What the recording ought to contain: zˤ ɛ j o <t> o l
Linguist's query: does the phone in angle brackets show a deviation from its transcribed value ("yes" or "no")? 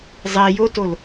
no